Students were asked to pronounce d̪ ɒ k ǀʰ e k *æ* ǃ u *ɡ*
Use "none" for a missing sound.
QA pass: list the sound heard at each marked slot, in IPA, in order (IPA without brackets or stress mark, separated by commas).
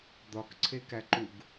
æ, ɡ